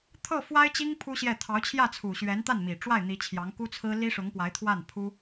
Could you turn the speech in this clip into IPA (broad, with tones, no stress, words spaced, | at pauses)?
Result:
t̪ʰɤ˥˩fwa˥ɪ̯t͡ɕi˥ŋ pʰu˥ɕjɛ˥˩ t̪ʰɑ˧˥ʊ̯t͡ɕʰjä˥˩t͡sʰu˨˩ ɕɥɛ˧˥nt̪a˥˩nmi˨˩ʈ͡ʂwa˥˩ɪ̯ n̪i˧˥t͡ɕʰjɑ˧˥ŋ ku˥t͡sʰɹ̩˥ li˥ʂʊ˧˥ŋpwa˧˥ɪ̯t̪ʰwa˥˩n pʰu˥